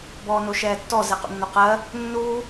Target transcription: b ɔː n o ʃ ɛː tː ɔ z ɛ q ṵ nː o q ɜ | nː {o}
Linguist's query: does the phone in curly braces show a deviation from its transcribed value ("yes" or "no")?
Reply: yes